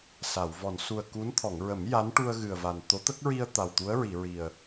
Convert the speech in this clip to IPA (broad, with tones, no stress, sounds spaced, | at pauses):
s a˨˩˨ w v ɔ˨˩˨ n s u˨˩ ə̯ k u˧˥ n t̪ʰ ɔ˨˩˨ ŋ ɹ ə˨˩˦ m j a˧˥ n ʈ u˧ ə̯ ɣ ɨ˨˩ ə̯ v a˨˩ n t̪ o˧˥ t̪ ə˦˥ k̚ ɹ i˧ ə̯ t̪ a˨˩ w t̪ u˧˥ ə̯ ɹ i˨˩˨ ɹ i˨˩ ə̯